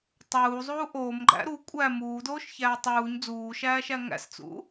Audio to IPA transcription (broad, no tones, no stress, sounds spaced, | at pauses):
tˤ uː zˤ uː ʔ oː m ɡ͡ǃ æ̰ ɾ u kʷʼ æ m uː d oː ʃ ç æː tˤ uː ɲ d͡z uː ʃ æː ʃ æ ŋ æ̰ s t͡s ṵ